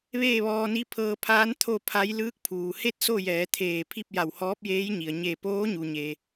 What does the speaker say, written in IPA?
ʋeː˥˨ʋɔː˧ni˧˥ pʰɤː˧pʰaː˧˥n t̪ʰo˥˨pʰa˧˥j lɯː˧˥k̚pʰuː˩ he˥˨t̚ so˥˨jɛː˩˧ t̪ʰeː˧˩pʰi˥˨p̚ ja˧˩whɔː˧˥p̚jeː˧˥jɲi˩ə̯ ɲe˧˩poː˧˥ ɲu˩ɲe˩

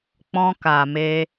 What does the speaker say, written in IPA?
k͡pɔ̃˧ka˨me˧

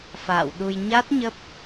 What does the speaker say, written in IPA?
fa̰ː˧˨wɗu˧j ɲa˦˥t̚ ɲə˦˥p̚

